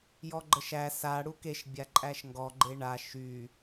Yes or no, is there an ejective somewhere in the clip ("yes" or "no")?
yes